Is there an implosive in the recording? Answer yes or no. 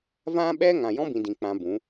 yes